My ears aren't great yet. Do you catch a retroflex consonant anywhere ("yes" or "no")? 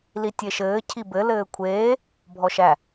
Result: no